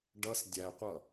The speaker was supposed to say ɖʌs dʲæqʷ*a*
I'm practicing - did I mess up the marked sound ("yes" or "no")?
yes